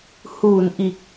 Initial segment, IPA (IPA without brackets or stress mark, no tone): h